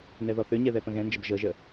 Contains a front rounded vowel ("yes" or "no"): yes